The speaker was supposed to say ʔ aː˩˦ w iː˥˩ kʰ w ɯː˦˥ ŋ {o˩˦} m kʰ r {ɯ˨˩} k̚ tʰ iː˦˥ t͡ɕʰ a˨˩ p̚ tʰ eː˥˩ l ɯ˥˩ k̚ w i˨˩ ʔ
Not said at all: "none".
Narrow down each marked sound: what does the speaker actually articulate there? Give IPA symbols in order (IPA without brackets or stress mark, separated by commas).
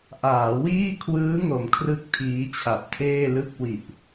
o˩˦, ɯ˥˩